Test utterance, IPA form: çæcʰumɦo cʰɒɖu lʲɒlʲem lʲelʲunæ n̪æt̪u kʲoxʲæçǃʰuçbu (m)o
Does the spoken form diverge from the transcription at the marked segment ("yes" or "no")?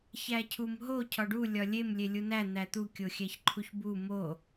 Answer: no